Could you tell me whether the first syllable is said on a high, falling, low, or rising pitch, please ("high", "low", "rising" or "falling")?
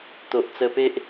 low